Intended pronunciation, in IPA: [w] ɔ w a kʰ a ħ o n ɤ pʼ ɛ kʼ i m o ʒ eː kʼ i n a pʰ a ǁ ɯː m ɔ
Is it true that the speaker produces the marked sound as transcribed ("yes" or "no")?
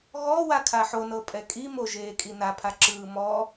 no